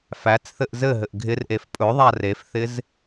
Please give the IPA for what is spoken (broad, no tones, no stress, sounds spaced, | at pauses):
f æ t͡s θ ɘ ʔ z ɘ ɦ ɘ ʔ ɡʱ ɪ r ʔ e f pʼ ɵ ðˤ a r e f θ ɪ z